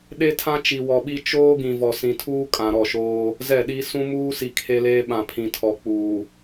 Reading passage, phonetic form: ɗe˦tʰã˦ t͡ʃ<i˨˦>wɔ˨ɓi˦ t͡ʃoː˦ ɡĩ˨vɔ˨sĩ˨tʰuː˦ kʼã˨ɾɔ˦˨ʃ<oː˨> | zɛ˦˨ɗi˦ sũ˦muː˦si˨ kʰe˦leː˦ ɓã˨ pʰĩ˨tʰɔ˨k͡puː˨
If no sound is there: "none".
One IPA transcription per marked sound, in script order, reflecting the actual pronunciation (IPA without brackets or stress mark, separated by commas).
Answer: i˨, oː˦